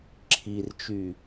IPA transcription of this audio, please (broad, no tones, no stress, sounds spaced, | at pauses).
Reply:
ǁʰ i r t͡ʃ y